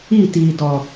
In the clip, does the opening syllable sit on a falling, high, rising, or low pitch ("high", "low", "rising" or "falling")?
falling